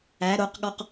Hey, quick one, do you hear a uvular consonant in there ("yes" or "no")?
yes